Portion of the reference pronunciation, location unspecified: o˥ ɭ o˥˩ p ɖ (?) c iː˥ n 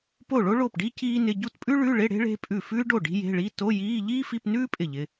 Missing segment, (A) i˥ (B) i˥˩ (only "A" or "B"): A